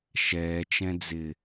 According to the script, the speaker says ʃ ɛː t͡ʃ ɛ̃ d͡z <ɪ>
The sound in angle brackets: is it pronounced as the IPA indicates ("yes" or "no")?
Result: yes